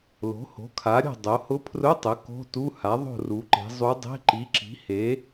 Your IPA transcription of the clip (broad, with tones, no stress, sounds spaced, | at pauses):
l o̤˩˥ h o̤˩˥ kʰ a˩˥ ɾʲ o̤˦˨ dˤ o˩˧ h ʊ˧˥ pʰ r ʊ˧˥˧ tˤ ʊ˩˥ k o̤˧˥˧ t u˧˥˧ h a˩˥ ðˤ o̤˦˨ r u˩˧ ǃ e̤˩˧ zˤ u˧˥ dˤ e̤˧˥˧ ǃ i˩˥ ǁ i̤˩˥ h e˩˥